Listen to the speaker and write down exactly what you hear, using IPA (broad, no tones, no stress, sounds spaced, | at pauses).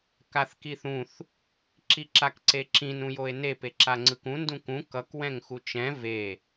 k a θ k i θ ũ θ | ǁ i ǁ a k ǀ e ǁ ĩ n ũ j o e̯ n e p e ǁ a ŋ͡ǀ ɯ k ũ n d ũ k ũ k ʌ k w ɛ̃ ŋ x u t͡ʃ ɛ̃ v e